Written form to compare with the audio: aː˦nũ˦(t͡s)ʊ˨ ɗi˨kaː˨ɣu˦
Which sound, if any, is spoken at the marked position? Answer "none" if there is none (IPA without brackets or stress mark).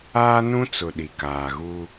t͡s